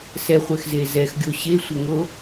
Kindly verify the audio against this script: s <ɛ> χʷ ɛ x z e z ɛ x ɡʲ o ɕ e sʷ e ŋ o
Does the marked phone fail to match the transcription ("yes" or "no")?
no